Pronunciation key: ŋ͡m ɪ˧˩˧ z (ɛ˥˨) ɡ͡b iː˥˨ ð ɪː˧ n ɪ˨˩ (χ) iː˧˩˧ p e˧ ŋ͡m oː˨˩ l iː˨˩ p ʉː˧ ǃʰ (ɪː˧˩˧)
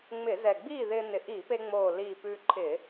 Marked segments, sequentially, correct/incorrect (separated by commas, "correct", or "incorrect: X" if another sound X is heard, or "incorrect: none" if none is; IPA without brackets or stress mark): incorrect: ɛ˨˩, incorrect: ʔ, correct